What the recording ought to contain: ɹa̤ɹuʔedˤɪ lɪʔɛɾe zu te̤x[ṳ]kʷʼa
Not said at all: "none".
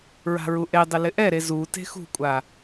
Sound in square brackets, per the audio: ṳ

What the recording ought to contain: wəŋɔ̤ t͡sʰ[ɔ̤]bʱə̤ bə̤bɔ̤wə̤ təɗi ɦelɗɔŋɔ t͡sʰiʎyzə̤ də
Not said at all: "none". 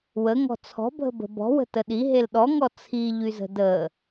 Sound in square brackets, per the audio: ɔ̤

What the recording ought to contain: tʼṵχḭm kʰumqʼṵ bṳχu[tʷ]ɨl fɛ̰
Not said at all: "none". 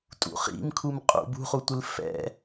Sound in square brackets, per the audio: tʷ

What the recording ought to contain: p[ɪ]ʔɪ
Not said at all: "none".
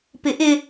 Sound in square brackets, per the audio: ɪ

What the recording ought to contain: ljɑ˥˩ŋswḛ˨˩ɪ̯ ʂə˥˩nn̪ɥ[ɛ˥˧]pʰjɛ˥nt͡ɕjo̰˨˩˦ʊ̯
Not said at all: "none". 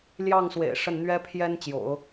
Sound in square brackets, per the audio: ɛ˥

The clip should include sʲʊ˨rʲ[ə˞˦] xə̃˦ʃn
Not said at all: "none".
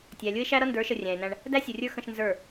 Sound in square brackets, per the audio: ə˞˦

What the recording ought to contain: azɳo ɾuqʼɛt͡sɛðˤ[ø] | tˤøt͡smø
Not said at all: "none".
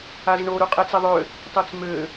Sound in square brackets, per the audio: ø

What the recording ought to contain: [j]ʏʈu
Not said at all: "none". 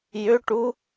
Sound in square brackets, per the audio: j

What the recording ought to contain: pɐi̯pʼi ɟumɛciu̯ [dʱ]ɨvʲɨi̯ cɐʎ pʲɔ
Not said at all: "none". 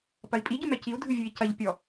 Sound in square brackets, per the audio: dʱ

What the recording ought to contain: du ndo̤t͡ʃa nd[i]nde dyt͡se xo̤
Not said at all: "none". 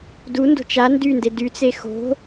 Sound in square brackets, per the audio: y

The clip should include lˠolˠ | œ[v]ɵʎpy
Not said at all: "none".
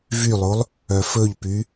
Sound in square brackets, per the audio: f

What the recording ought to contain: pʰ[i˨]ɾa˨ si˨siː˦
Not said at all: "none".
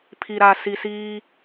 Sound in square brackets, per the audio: i˨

